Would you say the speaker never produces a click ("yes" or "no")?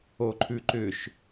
no